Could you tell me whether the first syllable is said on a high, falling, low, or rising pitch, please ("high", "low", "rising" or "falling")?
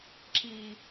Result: low